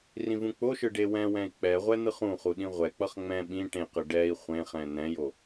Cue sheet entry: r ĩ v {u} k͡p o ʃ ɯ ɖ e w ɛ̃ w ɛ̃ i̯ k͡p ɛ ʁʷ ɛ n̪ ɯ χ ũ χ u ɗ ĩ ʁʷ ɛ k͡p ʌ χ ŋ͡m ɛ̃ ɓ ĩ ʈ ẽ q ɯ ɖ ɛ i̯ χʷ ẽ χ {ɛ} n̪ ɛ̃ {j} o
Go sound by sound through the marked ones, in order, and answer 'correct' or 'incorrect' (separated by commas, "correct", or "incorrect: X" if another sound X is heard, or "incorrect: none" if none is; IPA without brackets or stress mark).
incorrect: ũ, incorrect: ɛ̃, correct